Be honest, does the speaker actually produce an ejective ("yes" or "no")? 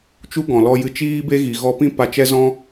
no